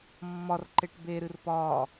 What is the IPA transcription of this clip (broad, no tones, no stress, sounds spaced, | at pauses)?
mː ɒ r ǃ e ʈ b e ɾ ɨ r p ɒː